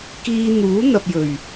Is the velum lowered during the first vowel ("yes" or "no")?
no